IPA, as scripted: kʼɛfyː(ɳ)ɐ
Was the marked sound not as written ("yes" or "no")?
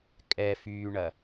no